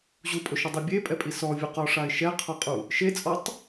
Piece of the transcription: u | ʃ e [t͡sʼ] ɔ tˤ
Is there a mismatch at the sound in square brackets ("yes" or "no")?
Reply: no